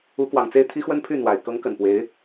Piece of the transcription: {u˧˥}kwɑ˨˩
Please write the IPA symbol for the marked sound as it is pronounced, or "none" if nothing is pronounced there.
u˧˥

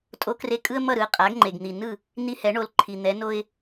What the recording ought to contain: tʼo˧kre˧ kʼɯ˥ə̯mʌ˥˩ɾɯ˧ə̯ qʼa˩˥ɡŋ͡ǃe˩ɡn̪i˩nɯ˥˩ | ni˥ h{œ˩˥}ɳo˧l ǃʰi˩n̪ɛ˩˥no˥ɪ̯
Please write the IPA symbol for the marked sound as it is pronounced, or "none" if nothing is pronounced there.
ɛ˩˥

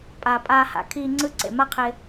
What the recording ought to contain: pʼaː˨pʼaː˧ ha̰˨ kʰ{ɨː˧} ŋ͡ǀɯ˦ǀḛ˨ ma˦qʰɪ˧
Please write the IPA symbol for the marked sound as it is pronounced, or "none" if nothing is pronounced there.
iː˧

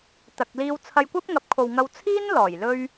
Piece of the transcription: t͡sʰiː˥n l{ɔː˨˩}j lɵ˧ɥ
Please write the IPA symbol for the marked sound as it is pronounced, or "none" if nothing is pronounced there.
ɔː˨˩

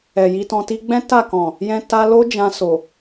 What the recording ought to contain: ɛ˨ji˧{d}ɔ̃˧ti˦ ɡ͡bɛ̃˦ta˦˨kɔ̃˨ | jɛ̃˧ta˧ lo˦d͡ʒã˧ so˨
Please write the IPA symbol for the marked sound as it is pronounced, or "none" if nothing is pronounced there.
t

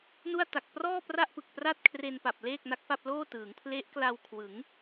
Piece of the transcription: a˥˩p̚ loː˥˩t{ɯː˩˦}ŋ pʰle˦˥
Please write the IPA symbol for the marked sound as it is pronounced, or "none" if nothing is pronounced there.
ɯː˩˦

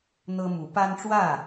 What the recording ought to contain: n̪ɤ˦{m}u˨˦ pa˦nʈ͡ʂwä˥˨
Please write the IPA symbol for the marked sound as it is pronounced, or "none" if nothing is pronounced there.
m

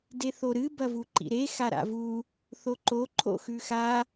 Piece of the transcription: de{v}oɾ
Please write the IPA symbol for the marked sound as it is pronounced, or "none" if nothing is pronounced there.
θ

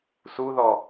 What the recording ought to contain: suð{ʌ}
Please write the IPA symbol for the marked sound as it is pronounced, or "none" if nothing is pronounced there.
ɔ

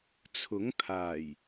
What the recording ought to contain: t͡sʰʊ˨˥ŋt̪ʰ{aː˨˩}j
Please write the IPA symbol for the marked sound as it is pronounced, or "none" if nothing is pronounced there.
aː˨˩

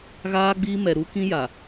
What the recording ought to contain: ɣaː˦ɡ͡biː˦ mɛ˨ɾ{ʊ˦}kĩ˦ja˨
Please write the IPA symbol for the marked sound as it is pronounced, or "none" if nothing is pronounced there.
u˦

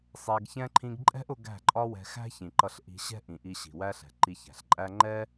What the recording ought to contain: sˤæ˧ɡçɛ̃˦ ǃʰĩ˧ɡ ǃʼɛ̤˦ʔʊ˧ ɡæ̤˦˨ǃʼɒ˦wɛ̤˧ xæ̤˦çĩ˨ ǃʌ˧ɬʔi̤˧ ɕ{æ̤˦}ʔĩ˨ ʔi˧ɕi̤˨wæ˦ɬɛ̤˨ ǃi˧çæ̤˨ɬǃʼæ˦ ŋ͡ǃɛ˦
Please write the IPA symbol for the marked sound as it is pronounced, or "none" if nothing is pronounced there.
ɛ̤˦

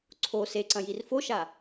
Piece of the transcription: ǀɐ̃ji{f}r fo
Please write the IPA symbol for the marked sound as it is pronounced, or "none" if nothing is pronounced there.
none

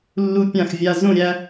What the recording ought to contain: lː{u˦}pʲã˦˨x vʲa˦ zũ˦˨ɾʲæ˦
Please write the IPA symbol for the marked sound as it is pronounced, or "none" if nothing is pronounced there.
u˦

